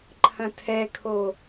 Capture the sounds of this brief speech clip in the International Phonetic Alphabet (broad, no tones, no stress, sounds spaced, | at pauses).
ǃʰ ɐ̃ tʰ ɛ kʰ o